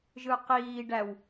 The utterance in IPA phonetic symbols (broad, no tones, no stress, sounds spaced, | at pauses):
ʒ ɯ q iː ɖ æ w